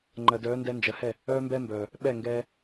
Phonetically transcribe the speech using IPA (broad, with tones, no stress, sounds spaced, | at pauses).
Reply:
ŋ͡ǃ ɜ˨ d œː˨˦ n d ɛ˧ n d͡ʒ ɜ˨ h ɛ˦˨ | œː˦ m b ɛ˦ m b œː˨ | ɓ ɛ˦˨ ŋ ɡ ɛː˧